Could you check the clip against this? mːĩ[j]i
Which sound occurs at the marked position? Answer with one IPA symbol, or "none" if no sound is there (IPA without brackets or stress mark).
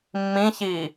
ç